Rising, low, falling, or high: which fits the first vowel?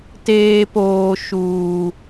high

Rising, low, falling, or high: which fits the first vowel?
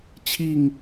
falling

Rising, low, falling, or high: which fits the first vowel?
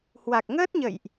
low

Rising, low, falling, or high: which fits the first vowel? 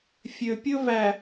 low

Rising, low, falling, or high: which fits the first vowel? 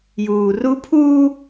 low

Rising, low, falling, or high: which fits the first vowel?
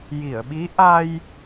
low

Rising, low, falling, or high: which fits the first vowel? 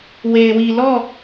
low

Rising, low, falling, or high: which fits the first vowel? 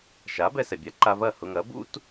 rising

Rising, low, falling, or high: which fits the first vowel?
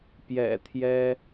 low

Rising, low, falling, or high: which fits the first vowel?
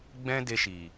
high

